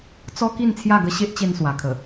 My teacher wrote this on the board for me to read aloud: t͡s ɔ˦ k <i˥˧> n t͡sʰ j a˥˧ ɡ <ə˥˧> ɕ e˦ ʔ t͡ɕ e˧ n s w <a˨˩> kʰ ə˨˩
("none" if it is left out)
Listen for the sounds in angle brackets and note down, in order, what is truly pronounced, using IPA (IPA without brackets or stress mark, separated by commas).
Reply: i˥˧, ə˦, a˨˩